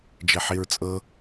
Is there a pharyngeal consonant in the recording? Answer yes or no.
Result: yes